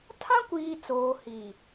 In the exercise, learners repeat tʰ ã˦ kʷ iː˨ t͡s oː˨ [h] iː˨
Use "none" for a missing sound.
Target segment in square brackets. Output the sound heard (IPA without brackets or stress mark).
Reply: h